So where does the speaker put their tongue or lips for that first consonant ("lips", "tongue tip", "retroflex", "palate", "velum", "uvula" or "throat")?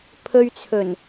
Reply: lips